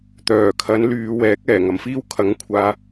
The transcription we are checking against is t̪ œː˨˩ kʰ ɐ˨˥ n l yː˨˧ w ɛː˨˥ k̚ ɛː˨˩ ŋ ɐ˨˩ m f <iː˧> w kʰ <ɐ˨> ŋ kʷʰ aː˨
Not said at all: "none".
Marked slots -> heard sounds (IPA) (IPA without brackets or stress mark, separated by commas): iː˥, ɐ˨˥